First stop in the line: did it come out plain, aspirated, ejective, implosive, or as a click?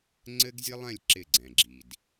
click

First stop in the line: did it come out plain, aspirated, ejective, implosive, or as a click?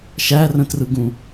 plain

